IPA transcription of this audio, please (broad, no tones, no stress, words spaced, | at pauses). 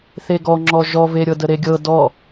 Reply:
θeɡɔŋ͡ǁɔ ʒɔveɾʲɤdə ɾeɡʲɤ dɔ